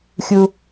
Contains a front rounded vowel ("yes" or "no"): no